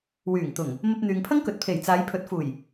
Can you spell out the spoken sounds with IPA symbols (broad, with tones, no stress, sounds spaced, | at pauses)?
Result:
w yː˨˩ ŋ t̪ ʊ˨˩ ŋ | m ɐ˧ p̚ n̪ yː˨ ŋ pʰ ɐ˥ ŋ k ɵ˨ t̚ pʰ e˨˩ j t͡s aː˨˧ j pʰ ɵ˨˥ t̚ f uː˨˩ j